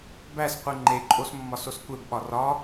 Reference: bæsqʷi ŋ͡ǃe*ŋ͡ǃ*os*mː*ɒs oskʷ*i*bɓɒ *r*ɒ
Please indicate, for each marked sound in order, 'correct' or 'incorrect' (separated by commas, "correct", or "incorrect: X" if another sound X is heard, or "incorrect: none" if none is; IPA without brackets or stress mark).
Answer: incorrect: ǃʼ, correct, incorrect: e, correct